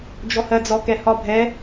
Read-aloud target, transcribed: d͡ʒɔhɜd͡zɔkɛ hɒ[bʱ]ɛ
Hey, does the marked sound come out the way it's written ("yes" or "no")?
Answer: yes